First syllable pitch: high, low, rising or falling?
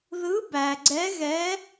rising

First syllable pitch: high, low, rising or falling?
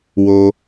high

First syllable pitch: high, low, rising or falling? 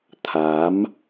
rising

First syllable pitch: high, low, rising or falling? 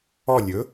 falling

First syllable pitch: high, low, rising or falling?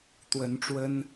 rising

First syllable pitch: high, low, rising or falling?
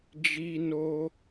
high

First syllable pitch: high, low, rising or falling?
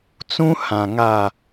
high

